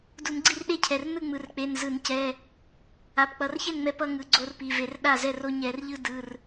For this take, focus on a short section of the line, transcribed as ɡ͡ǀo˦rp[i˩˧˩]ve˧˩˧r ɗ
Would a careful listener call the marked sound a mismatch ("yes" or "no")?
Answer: no